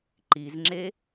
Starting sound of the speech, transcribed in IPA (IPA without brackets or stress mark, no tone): ǃ